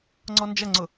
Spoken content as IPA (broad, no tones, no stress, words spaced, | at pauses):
ŋ͡ǀɔnd͡ʒɐŋ͡ǀʊ